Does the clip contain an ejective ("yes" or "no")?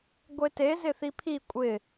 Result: yes